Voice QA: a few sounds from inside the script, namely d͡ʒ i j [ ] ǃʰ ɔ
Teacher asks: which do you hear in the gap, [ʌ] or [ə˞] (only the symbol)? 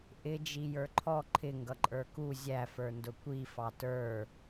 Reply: ə˞